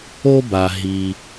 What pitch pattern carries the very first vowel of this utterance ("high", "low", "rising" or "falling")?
high